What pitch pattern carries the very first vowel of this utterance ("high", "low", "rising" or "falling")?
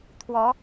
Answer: rising